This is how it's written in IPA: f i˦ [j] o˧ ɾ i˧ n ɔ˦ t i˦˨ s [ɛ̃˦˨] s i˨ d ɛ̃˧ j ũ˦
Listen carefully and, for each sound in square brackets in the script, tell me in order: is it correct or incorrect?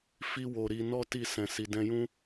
incorrect, incorrect

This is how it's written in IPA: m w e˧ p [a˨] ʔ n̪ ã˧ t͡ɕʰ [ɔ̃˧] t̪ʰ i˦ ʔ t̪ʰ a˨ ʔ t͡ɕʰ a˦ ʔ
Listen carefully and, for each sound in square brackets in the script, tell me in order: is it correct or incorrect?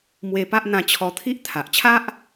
incorrect, incorrect

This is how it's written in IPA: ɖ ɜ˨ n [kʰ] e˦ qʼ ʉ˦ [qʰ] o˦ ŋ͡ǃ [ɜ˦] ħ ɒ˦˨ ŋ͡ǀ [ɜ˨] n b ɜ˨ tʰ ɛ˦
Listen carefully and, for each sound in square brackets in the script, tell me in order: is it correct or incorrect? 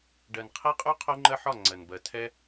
incorrect, correct, correct, correct

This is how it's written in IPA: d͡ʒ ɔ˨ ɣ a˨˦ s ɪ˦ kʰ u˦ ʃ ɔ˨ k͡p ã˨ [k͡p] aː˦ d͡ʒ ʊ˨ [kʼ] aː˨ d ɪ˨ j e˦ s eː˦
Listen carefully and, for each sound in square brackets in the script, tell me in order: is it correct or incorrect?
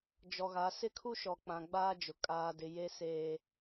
incorrect, correct

